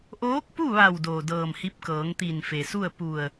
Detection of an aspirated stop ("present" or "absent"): absent